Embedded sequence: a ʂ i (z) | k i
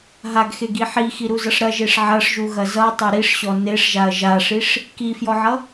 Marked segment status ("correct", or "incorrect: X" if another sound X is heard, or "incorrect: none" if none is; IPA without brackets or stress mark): incorrect: ʂ